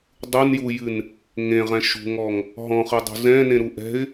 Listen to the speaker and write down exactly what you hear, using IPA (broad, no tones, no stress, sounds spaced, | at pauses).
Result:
dˤ u n j u j ɨ n | ŋ ẽ ʁ ɛ̃ ʃ ṳ ŋ ɔ ŋ | ɦ ɔ̃ χ ɨ dˤ ṳ z ɛ̃ n ẽ ɾ u ʔ ɛ̤ ɪ̯